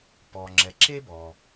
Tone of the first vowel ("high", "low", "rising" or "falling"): low